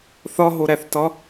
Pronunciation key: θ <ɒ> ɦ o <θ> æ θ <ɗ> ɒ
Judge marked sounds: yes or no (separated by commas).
yes, no, no